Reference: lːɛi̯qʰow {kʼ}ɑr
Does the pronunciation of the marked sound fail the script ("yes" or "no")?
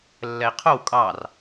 no